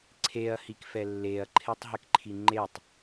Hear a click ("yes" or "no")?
yes